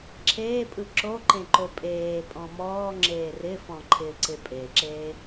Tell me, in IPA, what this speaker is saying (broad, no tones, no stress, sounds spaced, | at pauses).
ǁʰ eː pʼ ɯ ǁ o ǃ ẽ ǃ o pʼ eː pʼ ɔ̃ m ɔː ŋ͡ǁ eː r ɪ f ɔ̃ ǃʰ ɪː ǀ ɪ pʼ e ǁ eː